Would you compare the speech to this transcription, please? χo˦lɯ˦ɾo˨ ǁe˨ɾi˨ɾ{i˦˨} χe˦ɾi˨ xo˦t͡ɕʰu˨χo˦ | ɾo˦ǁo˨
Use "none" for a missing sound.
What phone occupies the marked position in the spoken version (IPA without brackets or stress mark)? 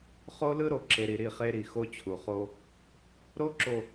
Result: i˦˨